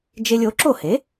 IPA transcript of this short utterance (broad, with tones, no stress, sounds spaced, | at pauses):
d͡ʒ e˧ lʲ o˩˥ ǁ o˥˩ h e˩˥